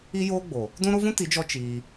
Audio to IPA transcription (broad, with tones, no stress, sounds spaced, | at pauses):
i˦ j oː˦ ɡ͡b o˨ | d ũ˦ ɾ o˦ v ũ˦ t i˨˦ d͡ʒ ɔ˧ t͡ʃ iː˧